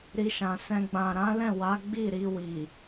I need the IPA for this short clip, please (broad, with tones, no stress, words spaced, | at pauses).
ɾi˧ʃã˨sɛ̃˧ ɡ͡bã˨ɾã˨˦lɛ̃˦˨ wa˨˦ ɡ͡bi˦˨ ɾi˧wi˨